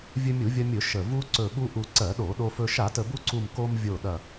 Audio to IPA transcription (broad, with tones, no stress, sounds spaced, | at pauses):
vʲ ɵ˧ mʲ u˧˩˧ vʲ ɐ˧ mʲ ɵ˧˩˧ ʃ ə˨˩ v u˧ ǀ ɵ˨˩ ɠ u˧ ʔ u˨˩ ǀ ɜ˧˩˧ ɗ o˧˩˧ ɗ o˧ f ɵ˧ ʃ a˧˩˧ t ə˨˩ b u˧ ǀ u˨˩ m k o˧ m vʲ o˨˩ ɗ ɐ˨˩